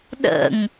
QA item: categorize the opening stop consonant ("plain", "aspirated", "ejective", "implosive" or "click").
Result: implosive